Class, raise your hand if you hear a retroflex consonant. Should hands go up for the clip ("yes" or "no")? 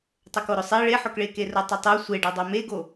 yes